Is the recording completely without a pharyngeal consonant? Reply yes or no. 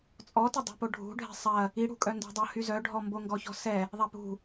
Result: yes